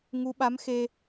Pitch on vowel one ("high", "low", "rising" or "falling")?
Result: rising